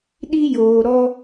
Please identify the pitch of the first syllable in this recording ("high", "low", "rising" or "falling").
high